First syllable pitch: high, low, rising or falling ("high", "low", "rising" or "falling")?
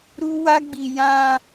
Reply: high